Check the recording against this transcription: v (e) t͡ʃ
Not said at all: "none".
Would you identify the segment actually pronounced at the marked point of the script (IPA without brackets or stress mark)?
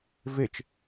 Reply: e